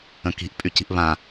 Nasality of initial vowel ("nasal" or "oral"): nasal